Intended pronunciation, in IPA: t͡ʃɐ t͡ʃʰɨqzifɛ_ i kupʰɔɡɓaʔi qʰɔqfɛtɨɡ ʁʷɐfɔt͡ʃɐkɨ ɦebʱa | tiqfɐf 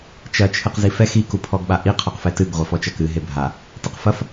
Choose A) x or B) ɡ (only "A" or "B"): A